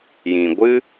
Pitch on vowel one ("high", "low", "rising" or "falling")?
low